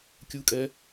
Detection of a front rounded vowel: absent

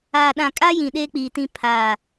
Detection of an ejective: present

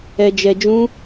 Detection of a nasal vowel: present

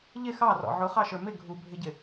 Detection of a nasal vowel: absent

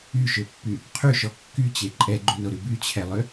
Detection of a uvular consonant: present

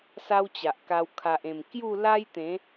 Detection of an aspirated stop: present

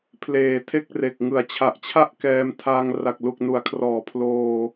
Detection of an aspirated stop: present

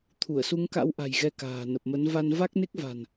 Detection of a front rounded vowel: absent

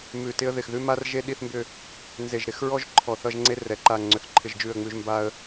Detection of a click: present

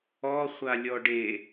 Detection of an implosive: absent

